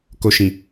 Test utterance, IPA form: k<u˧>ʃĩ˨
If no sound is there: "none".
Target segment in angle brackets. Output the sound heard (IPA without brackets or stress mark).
o˧